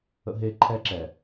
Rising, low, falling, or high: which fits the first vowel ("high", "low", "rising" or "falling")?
high